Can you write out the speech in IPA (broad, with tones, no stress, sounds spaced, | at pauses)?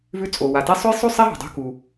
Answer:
v ʉ˧ t͡sʼ o˩ w a˩ t e˧ sˤ ɵ˥ j sˤ ʉ˥ sˤ e˥ ɦ ṳ˩ dˤ ṳ˧ k u˩